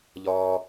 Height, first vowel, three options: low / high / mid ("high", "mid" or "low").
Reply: low